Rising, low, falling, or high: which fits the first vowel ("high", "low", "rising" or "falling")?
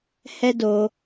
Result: high